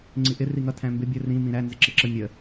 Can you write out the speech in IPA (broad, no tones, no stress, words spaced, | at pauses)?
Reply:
ŋ͡ǀiʔɪ riŋʌ tʰæ̃mbɪ bʲə rĩ mĩɾæ nzɪǁɪǁə mʲə